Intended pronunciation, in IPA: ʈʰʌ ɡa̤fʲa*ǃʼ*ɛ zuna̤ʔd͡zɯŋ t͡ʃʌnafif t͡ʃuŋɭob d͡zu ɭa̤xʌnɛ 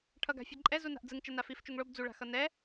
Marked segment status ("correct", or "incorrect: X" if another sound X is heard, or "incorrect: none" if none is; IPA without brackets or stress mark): correct